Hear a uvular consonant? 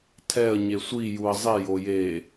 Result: no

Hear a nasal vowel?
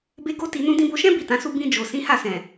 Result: yes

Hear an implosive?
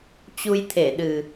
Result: yes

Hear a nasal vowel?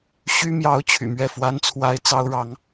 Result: no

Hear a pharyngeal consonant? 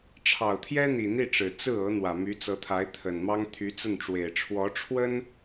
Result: no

